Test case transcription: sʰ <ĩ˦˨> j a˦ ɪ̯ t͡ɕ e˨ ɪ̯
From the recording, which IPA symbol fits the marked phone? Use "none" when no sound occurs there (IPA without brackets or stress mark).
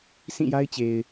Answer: ĩ˦˨